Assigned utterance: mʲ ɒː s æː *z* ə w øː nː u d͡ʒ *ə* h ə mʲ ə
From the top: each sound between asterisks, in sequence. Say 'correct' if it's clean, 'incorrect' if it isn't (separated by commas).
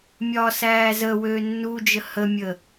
correct, correct